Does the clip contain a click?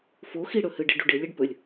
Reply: no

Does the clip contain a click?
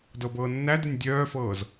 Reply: no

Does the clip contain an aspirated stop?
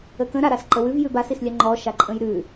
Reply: no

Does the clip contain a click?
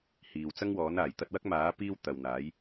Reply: no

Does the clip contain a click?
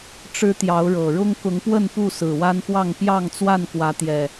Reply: no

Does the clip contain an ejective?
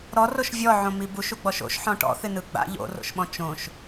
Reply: no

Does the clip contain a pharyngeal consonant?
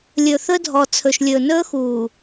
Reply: no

